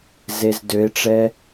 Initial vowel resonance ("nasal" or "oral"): oral